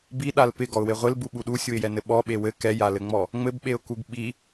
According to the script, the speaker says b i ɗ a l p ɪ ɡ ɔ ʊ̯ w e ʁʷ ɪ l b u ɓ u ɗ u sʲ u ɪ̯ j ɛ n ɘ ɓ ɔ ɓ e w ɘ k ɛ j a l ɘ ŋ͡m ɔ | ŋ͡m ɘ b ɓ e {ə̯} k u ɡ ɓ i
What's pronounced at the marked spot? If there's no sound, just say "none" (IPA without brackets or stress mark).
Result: ʊ̯